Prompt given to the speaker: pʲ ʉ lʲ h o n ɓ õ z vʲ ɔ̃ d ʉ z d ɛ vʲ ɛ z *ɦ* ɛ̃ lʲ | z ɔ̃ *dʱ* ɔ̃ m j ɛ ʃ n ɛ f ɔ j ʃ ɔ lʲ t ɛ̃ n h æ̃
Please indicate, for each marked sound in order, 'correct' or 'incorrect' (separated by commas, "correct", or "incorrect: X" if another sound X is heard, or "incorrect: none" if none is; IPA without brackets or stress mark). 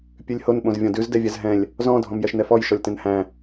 correct, correct